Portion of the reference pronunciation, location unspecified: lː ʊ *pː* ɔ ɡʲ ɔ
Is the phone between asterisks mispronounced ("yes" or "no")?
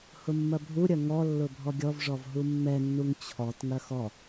yes